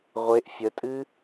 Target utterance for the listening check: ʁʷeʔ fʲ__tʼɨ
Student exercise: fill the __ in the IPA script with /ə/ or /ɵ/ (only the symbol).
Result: ə